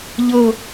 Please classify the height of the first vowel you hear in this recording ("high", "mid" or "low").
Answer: mid